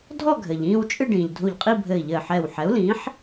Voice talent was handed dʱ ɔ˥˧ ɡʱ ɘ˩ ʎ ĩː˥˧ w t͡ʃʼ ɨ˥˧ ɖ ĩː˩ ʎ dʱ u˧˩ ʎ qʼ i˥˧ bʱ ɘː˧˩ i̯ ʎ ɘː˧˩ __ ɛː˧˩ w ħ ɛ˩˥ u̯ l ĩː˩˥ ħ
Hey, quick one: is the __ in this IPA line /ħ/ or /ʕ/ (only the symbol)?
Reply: ħ